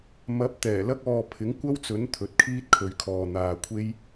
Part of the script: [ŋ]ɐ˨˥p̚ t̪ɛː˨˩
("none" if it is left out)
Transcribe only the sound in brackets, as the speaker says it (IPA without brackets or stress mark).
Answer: m